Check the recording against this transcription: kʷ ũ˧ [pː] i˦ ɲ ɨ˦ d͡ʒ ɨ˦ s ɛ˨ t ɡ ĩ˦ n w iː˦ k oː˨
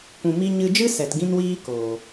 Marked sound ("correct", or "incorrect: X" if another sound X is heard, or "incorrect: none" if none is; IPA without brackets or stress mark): incorrect: m